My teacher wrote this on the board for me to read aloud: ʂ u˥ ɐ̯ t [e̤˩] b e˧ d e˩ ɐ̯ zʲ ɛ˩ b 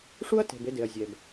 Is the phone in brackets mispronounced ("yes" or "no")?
no